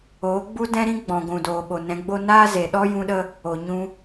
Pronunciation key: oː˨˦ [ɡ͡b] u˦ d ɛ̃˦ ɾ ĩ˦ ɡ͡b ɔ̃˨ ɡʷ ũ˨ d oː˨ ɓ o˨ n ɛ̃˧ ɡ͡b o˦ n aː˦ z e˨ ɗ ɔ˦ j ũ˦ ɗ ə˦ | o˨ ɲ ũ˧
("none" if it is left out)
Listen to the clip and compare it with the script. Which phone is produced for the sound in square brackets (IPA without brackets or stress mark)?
ɡ͡b